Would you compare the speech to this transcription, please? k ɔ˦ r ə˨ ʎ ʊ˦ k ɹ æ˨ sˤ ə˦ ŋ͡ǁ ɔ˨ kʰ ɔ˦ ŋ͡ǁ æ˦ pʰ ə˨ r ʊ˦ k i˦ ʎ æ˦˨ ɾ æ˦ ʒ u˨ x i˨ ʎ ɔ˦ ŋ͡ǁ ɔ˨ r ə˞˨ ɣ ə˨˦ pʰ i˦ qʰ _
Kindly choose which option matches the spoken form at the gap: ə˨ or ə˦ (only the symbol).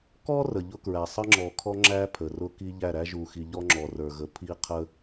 ə˦